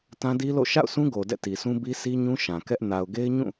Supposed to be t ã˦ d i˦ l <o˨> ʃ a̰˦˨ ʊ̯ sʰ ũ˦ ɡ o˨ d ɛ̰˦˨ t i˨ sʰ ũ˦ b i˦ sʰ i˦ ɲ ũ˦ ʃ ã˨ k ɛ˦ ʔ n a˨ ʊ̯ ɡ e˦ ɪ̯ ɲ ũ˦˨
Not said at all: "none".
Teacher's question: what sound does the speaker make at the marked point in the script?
o̰˦˨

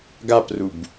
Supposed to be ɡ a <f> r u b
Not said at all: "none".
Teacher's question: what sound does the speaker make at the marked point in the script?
p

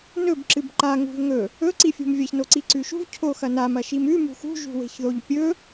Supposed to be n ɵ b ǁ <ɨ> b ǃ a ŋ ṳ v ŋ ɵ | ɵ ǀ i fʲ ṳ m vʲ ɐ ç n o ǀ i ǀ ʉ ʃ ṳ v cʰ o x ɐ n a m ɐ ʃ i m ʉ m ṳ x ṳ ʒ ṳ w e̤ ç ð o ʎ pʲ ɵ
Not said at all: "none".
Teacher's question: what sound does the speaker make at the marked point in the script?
ɨ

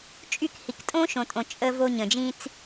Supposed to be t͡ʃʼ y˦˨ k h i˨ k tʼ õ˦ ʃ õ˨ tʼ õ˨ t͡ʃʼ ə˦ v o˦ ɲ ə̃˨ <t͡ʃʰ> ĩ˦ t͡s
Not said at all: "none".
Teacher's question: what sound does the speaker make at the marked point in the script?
d͡ʒ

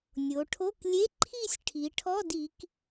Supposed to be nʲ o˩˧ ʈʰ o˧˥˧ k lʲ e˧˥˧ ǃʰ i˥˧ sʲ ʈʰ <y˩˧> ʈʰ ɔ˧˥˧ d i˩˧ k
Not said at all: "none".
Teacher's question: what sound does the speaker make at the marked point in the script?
i˩˧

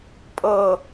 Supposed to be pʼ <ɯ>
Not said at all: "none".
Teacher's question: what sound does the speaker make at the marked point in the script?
ɤ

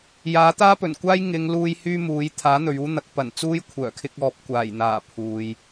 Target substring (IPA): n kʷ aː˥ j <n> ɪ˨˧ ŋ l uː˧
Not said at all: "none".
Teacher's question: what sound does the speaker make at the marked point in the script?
ŋ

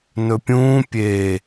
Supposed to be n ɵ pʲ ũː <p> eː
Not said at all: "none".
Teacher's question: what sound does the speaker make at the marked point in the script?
pʲ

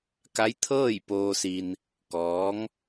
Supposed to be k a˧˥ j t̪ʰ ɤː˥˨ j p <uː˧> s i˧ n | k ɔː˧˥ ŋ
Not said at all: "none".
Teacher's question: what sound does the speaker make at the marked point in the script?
oː˧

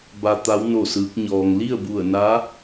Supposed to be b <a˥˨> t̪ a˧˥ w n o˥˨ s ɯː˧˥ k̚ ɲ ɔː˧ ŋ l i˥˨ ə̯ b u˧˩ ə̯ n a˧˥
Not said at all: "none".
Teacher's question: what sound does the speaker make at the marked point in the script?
a˧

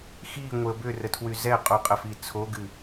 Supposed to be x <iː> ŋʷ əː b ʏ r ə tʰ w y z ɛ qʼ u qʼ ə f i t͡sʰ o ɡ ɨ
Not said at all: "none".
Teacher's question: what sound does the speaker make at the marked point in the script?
iː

